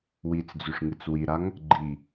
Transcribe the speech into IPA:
wit͡sd͡zʉʂŋɨt͡s wiɾaŋ | ɡ͡ǃi

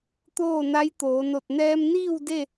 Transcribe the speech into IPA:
t̪oː˥˨na˧˥jt̪oː˩˧no˧˩t̚ nɛː˧mniː˥˨w de˥˨

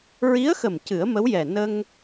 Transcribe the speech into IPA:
ɹi˧˥ə̯xə˨˩m cɨ˨˩˦ə̯mə˧˥wjɛ˨˩ nə˧ŋ

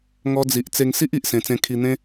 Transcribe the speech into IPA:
ŋɔ˧d͡zi˨ʔ t͡se˧ŋsi˦ʔi˨ʔ sẽ˨˩t͡sẽ˧kʰi˧ n̪ẽ˦

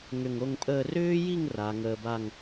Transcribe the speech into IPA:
ŋʏ˧˩ŋo˥˧ŋpʼəː˥˧ rʏː˥ji˥˧ŋ ra˩˧ŋəː˧ba˥˧ŋ

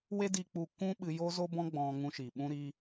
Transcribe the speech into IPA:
we˦di˧k͡pu˧ kʷũ˦ɓɨ˧ jo˦zo˦bɔ̃˦ɡ͡bɔ̃˧ ŋũ˧ ʃi˨ɓũ˦ɾi˦

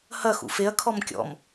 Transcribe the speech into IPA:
hɐ xṵfeɐ̯ kʰɔmkʲɔ̰m

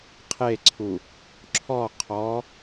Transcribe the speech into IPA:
qʰeǀʰu | ǁʰɔ qʰɔ

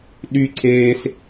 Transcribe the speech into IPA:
ɗyǀeːs

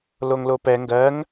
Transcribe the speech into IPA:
loŋlopɛ ŋɡɜŋ

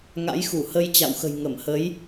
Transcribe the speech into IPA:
ŋa̰˧˥jxu˧˩hə˧j t͡ɕa̰˧˨wxə̤˨˩j ŋə˧˩mhə˨˦j

